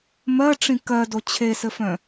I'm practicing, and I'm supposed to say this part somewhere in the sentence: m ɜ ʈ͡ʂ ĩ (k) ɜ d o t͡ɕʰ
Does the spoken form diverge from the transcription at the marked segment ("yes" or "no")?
no